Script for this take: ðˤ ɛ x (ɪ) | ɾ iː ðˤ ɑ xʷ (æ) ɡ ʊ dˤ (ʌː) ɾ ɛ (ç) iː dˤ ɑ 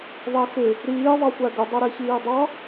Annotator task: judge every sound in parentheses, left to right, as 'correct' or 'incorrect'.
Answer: correct, correct, incorrect, correct

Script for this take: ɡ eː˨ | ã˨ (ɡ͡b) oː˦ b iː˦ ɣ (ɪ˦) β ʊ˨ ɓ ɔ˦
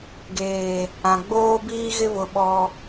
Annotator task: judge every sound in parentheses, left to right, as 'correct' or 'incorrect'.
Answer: correct, correct

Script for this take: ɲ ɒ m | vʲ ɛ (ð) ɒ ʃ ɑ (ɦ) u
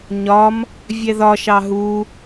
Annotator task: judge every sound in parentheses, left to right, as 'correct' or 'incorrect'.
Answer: correct, correct

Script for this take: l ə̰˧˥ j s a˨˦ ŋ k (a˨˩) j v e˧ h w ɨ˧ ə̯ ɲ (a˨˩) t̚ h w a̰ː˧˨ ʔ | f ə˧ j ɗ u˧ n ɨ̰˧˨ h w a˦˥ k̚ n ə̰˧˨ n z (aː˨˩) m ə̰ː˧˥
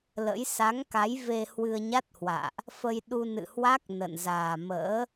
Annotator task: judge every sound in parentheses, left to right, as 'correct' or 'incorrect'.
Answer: incorrect, incorrect, correct

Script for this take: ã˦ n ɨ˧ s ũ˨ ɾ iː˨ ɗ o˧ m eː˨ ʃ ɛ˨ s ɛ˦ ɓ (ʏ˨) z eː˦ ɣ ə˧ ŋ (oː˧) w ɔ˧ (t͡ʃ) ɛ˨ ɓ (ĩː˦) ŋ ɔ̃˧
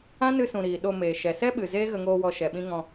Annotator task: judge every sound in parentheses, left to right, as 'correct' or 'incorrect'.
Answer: incorrect, correct, incorrect, incorrect

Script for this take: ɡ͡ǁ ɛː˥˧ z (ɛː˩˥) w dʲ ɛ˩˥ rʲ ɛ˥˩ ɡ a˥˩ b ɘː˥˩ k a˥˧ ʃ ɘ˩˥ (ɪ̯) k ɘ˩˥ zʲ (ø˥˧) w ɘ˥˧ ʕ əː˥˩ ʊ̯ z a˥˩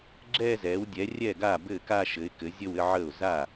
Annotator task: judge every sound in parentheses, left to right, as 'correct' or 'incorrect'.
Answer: correct, correct, incorrect

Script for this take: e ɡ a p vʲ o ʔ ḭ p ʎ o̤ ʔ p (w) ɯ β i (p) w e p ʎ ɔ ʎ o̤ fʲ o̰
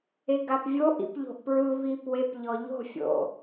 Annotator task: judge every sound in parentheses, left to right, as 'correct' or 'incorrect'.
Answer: incorrect, correct

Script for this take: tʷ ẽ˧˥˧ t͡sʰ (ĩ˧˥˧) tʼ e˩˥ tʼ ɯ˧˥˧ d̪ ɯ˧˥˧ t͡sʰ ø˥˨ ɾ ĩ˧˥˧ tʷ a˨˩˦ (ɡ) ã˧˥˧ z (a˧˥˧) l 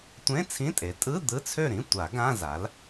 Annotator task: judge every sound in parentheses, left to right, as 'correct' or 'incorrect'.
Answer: correct, correct, incorrect

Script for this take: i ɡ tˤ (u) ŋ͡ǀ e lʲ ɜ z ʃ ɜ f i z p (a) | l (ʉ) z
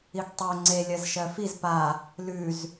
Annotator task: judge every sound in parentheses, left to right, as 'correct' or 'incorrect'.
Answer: incorrect, correct, correct

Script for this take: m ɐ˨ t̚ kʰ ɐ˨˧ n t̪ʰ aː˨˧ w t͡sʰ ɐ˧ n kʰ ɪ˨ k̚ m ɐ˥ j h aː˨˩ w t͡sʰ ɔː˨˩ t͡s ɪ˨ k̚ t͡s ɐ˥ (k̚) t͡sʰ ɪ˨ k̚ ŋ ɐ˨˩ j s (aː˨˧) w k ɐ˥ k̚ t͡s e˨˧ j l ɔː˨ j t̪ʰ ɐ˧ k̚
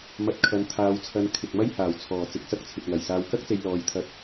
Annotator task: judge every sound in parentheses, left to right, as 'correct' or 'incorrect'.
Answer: correct, correct

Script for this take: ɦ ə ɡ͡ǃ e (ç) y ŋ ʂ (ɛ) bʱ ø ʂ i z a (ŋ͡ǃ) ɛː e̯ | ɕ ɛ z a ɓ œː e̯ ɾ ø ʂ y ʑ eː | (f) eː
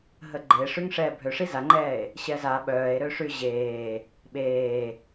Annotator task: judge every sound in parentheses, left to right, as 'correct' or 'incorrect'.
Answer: incorrect, incorrect, correct, incorrect

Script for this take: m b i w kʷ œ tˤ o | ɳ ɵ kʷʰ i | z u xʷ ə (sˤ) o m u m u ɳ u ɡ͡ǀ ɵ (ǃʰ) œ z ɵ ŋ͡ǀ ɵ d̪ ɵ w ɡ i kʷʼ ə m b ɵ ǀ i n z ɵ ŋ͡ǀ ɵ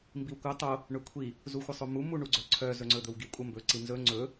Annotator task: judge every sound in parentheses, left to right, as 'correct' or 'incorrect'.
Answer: correct, incorrect

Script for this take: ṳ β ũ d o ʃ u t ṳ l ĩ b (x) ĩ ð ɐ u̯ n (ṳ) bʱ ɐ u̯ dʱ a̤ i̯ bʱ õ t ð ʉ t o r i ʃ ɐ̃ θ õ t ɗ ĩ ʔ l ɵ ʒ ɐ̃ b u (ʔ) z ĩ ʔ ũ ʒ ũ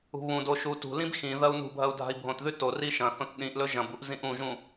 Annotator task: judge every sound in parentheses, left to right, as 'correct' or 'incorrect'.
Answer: correct, correct, correct

